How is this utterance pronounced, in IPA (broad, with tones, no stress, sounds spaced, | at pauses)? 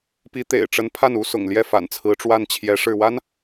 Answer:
p i˧˥ t̪ ḛ˨˩ ɪ̯ ʈ͡ʂ ə˧˥ n pʰ a˥˩ n u˥ s ʊ̰˨˩ ŋ l j ɛ˥˩ f a̰˨˩ n t͡sʰ ɹ̩˧˥ ʈ͡ʂ w a˥˩ n t͡ɕʰ j ɛ˧˥ ʂ ɻ̩˥˩ w a˥ n